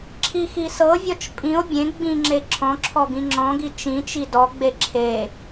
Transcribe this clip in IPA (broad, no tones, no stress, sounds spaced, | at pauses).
ǁʰ i x i s ɤ vʲ ɔ t͡ʃ pʼ ĩ o̯ bʲ ẽ ɡ͡b ĩ ŋ͡ǁ e ǁʰ ɔ̃ ǁʰ ɔ ɡ ĩ ŋ͡ǁ ɔ̃ ɡ i t͡ʃ ĩ t͡ʃ i d ɔ ɡ͡b e ǁʰ e